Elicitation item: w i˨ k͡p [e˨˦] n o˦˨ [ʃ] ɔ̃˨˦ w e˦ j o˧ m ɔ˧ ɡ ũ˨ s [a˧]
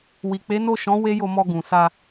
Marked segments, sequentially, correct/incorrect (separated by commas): correct, correct, correct